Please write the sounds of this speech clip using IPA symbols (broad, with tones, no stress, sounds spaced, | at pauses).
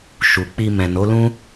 ʃ u˨ k͡p i˧ m ɛ̃˨ n o˨˦ l ũ˦